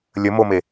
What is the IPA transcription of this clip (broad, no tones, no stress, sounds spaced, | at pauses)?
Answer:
lʲ ə m o m e